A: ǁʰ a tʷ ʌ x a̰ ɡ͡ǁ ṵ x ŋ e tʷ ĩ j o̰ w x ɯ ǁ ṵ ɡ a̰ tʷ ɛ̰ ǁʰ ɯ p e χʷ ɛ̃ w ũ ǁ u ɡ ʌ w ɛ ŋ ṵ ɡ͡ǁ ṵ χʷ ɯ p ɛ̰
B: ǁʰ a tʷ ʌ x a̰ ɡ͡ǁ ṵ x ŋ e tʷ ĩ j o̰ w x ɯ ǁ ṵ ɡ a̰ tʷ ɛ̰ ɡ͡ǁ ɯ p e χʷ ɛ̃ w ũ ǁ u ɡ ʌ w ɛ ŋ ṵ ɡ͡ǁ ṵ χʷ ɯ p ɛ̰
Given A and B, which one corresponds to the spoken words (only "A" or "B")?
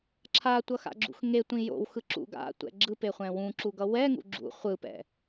B